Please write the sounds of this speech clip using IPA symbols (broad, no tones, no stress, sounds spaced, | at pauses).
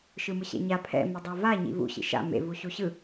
ʃ ɯ m ɯ ɕ ḛ ɲ a pʰ ɛ̰ m ɛ dˤ a v a ɲ ḭ v ṵ ɕ ḭ ʃ a̰ m ḛ v u ɕ u ɕ ɯ